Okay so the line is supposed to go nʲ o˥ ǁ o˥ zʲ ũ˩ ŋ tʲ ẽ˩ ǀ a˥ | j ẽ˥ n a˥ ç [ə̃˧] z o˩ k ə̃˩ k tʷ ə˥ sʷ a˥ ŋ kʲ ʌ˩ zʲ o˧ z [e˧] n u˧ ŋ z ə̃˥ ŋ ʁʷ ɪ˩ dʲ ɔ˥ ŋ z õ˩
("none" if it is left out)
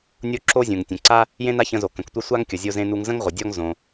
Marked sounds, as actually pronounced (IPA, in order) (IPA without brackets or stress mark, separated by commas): ə̃˧, ẽ˧